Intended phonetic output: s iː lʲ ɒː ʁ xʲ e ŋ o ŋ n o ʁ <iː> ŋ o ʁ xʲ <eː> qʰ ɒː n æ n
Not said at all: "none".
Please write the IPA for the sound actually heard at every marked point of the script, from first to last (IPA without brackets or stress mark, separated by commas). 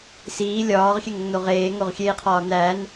eː, eː